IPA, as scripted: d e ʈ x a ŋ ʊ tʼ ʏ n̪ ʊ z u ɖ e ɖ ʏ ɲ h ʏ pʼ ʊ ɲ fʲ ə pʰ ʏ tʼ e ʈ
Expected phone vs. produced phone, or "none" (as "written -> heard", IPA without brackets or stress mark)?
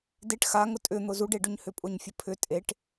none